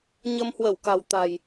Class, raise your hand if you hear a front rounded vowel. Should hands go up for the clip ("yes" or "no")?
no